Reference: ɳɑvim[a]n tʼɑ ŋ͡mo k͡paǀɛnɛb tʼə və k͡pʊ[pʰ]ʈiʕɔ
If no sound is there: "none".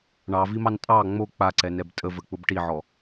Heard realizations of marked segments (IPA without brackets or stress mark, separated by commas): ɑ, b